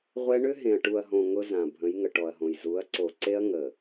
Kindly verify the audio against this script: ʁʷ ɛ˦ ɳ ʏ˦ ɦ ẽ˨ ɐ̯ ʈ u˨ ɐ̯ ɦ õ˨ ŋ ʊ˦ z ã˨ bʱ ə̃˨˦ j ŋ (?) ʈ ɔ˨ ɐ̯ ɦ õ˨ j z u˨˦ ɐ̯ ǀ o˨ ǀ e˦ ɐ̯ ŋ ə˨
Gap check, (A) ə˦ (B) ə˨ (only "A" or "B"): B